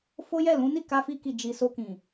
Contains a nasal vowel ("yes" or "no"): yes